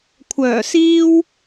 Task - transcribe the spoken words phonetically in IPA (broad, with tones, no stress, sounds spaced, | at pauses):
kʷʰ œː˨˩ s iː˧ w